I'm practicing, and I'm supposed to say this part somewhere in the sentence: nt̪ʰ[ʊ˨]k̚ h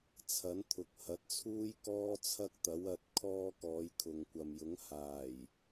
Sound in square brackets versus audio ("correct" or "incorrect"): correct